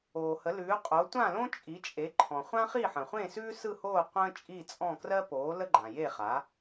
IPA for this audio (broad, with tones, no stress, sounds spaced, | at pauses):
oː˩ h ə˩˥ l ʉː˩˥ qʼ o˩˥ tʷ ã˥˨ l õ˥ t͡ʃʼ i˩˥ t͡ʃʼ e˩˥ ǃʰ ɔ̃˩ χʷ ã˥ χ i˥˨ ħ ə̃˩ χʷ ẽ˥˨ s ʉː˥ s ɯ˥˨ h oː˥˨ qʷ ə̃ː˥ t͡ʃʼ i˥˨ t͡sʼ ɔ̃˥˨ k r ɜ˥ p oː˩˥ l ə˥ ɡ͡ǃ ã˩ j e˥˨ χ a˩˥